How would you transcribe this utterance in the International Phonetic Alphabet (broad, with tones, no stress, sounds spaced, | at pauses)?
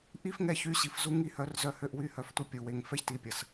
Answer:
ʔ i˦ f ŋ ɛ˧ ç y˧ ɕ i˨ f z u˦ ŋ i˦ h œ˨˦ r z œ˧ h ø˧ ʔ w y˦˨ h œ˧ f tʷ œ˦ pʲ u˨ w e˧ ŋ f ɛ˦ ç t i˧ pʲ ə˨ s